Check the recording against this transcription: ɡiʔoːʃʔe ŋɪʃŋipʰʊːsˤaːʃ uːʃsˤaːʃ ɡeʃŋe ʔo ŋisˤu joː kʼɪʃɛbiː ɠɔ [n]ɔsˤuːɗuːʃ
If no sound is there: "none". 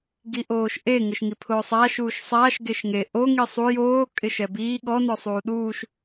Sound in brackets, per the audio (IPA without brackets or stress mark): n